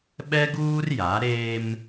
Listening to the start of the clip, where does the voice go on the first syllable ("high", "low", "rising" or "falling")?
high